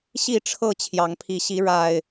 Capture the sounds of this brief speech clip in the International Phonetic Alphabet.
ɕ i˥˨ ʈ͡ʂʰ ɤ˥˨ t͡ɕʰ j ɑ˨˦ ŋ pʰ i˨˦ ɕ i˨˦ ɻ a˨˩ ɪ̯

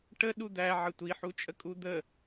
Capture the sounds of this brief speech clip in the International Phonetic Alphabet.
ʈ ə ɗ u d̪ æ ʕ ə tʷ i ħ u t͡ʃʼ ə kʼ u d̪ ə

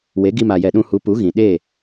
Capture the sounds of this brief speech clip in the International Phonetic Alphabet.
w e˨˦ ɡ i˧ m a˨ j ɛ˨ ɗ ũ˧ h u˨˦ p u˨˦ ɣ ĩ˨ ɗ e˦˨

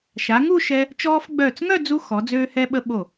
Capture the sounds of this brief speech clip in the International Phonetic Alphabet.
ʃ a˩˧ ŋ u˥˧ ʃ ɛ˧ | t͡ʃ ɔː˧ f ɡ͡b œː˧˩ t͡s ŋ œ˥˧ d͡z u˧ x ɔ˩˧ d͡z øː˧ h ɛ˧ ɓ ə˧ ɓ o˧˩

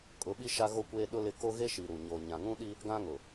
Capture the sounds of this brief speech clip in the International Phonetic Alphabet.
kʼ ʊ˨˦ ɓ i˦ ʃ a˦ ɣ o˦ kʷ eː˦ ɗ ʊ˦ l ɪ˦˨ k o˦ ɣ e˦ ʃ i˨ ɾ u˨ ɲ oː˨ ɲ ã˨ ŋ ũ˦ ɗ i˦ | ɡ ã˦ ŋ ʊ˨

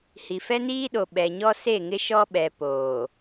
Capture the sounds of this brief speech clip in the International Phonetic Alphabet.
h i˨ f ɛ˦ n iː˦ ɗ o˨ ɓ ɛ˨ ɲ ɔ˦ s e˦˨ ŋ ɪ˦ ʃ ɔ˦ ɓ ɛ˨ p oː˨

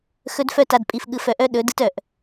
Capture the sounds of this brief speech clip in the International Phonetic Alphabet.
x ɵ˦ d f œ˦ t a˨ d pʼ i˨ f ɠ ɯ˨ f œ˨ ʔ œ˦ ɗ ɵ˨˦ d ɯ˦ t œ˨ ʔ

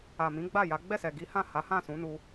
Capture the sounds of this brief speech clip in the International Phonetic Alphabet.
a˨ m ĩ˨˦ ɡ͡b a˦˨ j a˨˦ ɡ͡b ɛ˦˨ s ɛ˨ ɡ i˨˦ h ã˦˨ h a˨˦ h ã˦˨ s ũ˨˦ n u˧

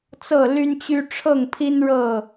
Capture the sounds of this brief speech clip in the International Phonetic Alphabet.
t͡s ɤ˥˨ l y˦ n t͡ɕ y˦ ʈ͡ʂʰ ɤ˥˨ ŋ pʰ i˦ n ɻ ɤ˥˨

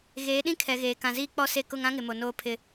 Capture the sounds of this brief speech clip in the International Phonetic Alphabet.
ɣ eː˨˦ ɗ ĩ˦ kʰ ɛ˨ ɣ eː˨ k ã˨ z iː˦ k͡p ɔ˦ s e˦ k ʊ˦ ŋ ã˦ ŋ ɪ˨ m o˨ n oː˦ pʰ ɪ˦˨

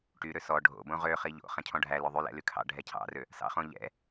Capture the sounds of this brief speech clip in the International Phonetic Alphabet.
ʈ y ɾ ø s ɔ ɖʱ o̰ b õ ʁ ø χ i ʎ o̰ χ ɛ̃ cʰ ɔ̃ ɖʱ æ l ø ðˤ y l ɛ̰ l y kʰ ɑ̰ ɖʱ ɛ cʰ ɑ̰ r ø | s ɑ̰ χ õ ʎ ɛ̰

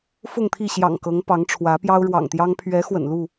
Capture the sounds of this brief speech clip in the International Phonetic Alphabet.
f ʊ˥˨ ŋ t̪ʰ i˥˨ ɕ j ɑ̰˨˩ ŋ k ɤ˨˦ ŋ p ɑ˨˦ ŋ ʈ͡ʂʰ w ä˨˦ p j ɑ˦ ʊ̯ ɻ w ɑ̰˨˩ ŋ t̪ j ɑ˦ ŋ pʰ ɥ ɛ˨˦ x w ə̰˨˩ n l u˥˨

